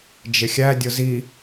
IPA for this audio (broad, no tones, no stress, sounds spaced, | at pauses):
d͡ʒ ɪ xʲ æ dʲ ʊ z i